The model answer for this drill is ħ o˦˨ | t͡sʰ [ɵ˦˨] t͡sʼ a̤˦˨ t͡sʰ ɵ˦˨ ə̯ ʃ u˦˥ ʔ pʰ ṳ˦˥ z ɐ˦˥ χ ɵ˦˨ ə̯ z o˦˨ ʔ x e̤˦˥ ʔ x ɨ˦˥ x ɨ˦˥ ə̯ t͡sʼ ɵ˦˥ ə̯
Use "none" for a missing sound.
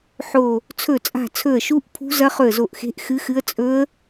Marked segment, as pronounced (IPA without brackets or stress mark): ɵ˦˨